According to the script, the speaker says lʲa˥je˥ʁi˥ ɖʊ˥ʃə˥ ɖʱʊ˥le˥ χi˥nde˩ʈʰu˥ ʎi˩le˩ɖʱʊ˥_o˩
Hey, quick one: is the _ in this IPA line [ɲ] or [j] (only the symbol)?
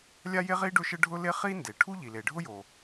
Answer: j